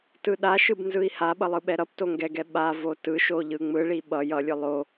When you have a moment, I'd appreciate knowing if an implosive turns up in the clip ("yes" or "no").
yes